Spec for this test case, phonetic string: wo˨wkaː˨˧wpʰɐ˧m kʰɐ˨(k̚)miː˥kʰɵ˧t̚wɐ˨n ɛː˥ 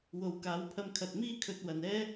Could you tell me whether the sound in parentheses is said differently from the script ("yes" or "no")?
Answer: yes